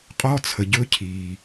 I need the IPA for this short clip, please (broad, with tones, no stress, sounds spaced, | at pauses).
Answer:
qʼ ɔ˦˥ t͡sʰ ə˩ ɟ ɵ˦˥ cʰ i˩